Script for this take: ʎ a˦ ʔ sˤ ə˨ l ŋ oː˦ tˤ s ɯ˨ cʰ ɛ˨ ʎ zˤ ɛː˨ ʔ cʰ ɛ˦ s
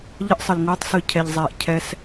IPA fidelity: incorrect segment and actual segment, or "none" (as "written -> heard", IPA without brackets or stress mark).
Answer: a˦ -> ə˦